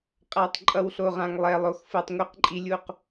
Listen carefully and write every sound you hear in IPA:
qʼ a˨ tˤ ǃʼ ʌ˨ w ɬ o˨ ʁ ã˨ ŋ lˠ ɛ˨ lˠ o˨ x f ɯ˨ tˤ ŋʷ i˦ q ǃʼ i˦ lʲ u˦ q

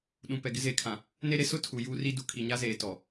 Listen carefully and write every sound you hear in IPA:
ɗ ũ˨ p ɛ˨ ɡ ɪ˦ z eː˨ kʰ ã˨ | n e˦ ɾ e˦ s ʊ˦ tʰ u˨ j uː˦ r i˦ d u˨ kʰ i˨ ɲ a˦ z eː˨ t ɔ˨

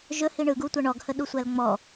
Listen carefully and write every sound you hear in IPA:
ʒ ɵ h i ɳ ɯ ɡ u tʷ æ ɳ ɔ ɡ h ə ɗ u sʷ æ l ŋ͡m ɔ

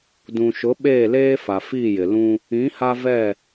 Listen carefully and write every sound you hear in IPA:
d ũ˨ ʃ ʊ˨˦ ɓ eː˦˨ l eː˦ f a˨ f iː˦˨ j ɪ˨ l ũ˦ | ĩ˨˦ h a˦ v ɛ˦˨

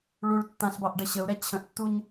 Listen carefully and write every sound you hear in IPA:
ɭ u ɭ tː ã ɬ b ɑ ʔ ɖ ə ɕ ə u̯ ɾ ɛ t͡ɕʰ ə̃ ʔ tː u ɲ

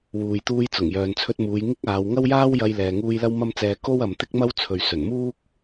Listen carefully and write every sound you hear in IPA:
w uː˨ j t̪ uː˧ j t͡s ʊ˨˩ ŋ j œː˨ n t͡sʰ ɵ˧ t̚ m uː˨˧ j ŋ ɪ˥ k̚ aː˨˧ w ŋ ɐ˥ w j aː˥ w j ɐ˧ j l ɛː˨ ŋ uː˧ j l ɐ˥ w m ɐ˥ m t͡s ɛː˧ k o˥ w ɐ˨ m t̪ ɪ˥ k̚ m ɐ˥ w t͡sʰ ɵ˨ ɥ s ɵ˨˩ n m uː˥ k̚

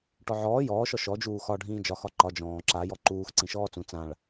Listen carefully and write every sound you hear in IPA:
ʈ ɔ ʕ ɔː j ɔː ʃ ɔ ʃ ɔ d͡ʒ uː x ɒ ɖʱ ĩː d͡ʒ ɒ x ɒ ǃ ɒ d͡ʒ ɔ̃ː ǁ a j ɔ ǃ uː x ǀ ĩ ʃ ɔː t͡s ũ t͡s ã ɭ

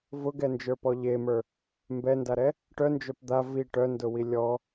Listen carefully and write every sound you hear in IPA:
v ʊ ɡ ɛ n d͡ʒ ə˞ p ɔ ʎ e m ə˞ | m b ɛ n d a ɾ ɛ | ʈ œ n d͡ʒ œ p d̪ a v i ʈ œ n d ʊ w i lʲ ɔ

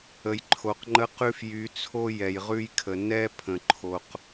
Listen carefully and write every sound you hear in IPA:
ə˨ j ǃʰ o˨ q ŋ͡ǃ ə˦ q ʉ˦ f j y˨˦ t͡sʰ o˦ j ɛ˨ j ʁ ʉ˦ j kʰ ə˨ n ɛ˦ pʰ ə̃˨ ǃʰ o˨ q

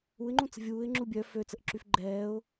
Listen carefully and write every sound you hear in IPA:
u ɪ̯ ŋ͡ǃ ũ t͡s ə̤ vʲ uː ɪ̯ ŋ͡ǁ u bʲ œ f ø t͡s ə ʔ ǁ y f ɡ͡ǃ ɛː ʊ̯

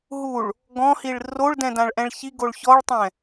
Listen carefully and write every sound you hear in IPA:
ɦ u ɭ | ɡ ɔ̃ h i ɭ r o ɭ d ɛ̃ d ã ɭ ʔ ɛ̃ ɭ ç i ɡ o ɭ ç ɔ ɭ tˤ ɛ̃

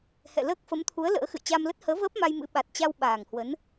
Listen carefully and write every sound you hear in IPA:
h ɛ̰˧˨ l əː˦˥ k̚ f ə˨˦ m t̪ʰ u˨˦ ə̯ l ə̰ː˧˥ x ɨ̰˧˨ j t͡ɕ aː˧ m l ə˦˥ t̚ h əː˨˦ v əː˦˥ p̚ m a˧ j m ɨ̰˧˥ ɓ a˨˩ t̚ t͡ɕ a˧ w ɓ aː˨˩ ŋ h w ə˨˦ n

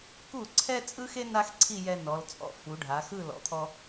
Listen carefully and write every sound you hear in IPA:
k u˧˩ ǀʰ ɛ˧ t͡sʼ ɯ˥ x e˥ n a˥ x ǀʰ i˥˧ j ɛ˧ n ɔ˩˧ l t͡sʼ ɔ̰˧˩ f u˩˧ ɖʱ a˩˧ x ɯ˥˧ l ɔ̰˩˧ t̪ʰ ɔ˧

